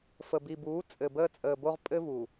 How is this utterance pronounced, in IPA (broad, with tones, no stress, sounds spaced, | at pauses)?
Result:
f ə˨ b i˨ b uː˨˦ t͡sʼ ɘ˨ b əː˦ t͡sʼ əː˨ b o˦ ʁ pʼ ɘ˦ v u˨